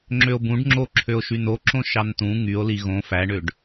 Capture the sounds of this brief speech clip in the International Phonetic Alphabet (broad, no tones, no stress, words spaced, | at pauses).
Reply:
ŋ͡ǁøo̯bũɖŋ͡ǁoǁʰøo̯ ʃynoǁõ ʃɑntũ ŋyo̯ liɣõ fæɳøɖ